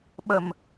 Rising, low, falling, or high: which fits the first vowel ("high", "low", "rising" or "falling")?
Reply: low